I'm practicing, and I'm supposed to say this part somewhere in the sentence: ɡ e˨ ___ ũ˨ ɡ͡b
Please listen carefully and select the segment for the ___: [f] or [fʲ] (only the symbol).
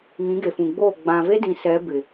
f